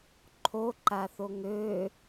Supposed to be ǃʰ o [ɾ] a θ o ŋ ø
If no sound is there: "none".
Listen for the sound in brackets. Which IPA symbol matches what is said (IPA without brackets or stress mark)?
ǃ